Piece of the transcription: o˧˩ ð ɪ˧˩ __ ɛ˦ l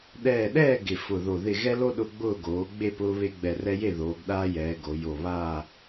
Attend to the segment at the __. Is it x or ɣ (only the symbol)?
ɣ